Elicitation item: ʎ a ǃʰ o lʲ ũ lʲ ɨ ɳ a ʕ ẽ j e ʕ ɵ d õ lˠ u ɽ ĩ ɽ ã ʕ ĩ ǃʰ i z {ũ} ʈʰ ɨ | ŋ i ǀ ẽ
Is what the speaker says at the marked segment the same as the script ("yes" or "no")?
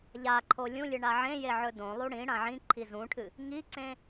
yes